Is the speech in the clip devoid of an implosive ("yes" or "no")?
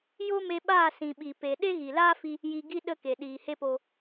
no